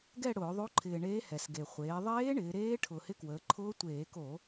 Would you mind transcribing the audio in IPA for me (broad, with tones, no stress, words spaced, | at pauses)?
ɡɛ˦˨ ɽʊː˧˩˧ðˤo˧˥ǃʰɪː˨˩ ɳeː˧˥hɛ˨˩sɡe˨˩ χʷeː˩˧ðˤeː˧˥ ɳɪː˩˧ɾeː˧˥ ʈʰʊ˨˩hɪ˧˥kwəː˩˧ǃʰʊː˧˥ tʷeː˧˩˧ko˧˩˧